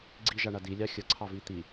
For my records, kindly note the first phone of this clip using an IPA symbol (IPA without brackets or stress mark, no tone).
ɡ͡ǀ